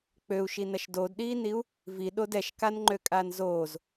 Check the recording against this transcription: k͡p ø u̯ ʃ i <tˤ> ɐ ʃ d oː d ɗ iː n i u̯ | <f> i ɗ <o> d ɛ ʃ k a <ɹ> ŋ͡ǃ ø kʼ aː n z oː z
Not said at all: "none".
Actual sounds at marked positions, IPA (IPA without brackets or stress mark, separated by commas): n, v, o, n